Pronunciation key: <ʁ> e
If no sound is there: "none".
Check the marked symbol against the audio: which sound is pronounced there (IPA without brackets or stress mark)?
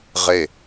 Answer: ʁ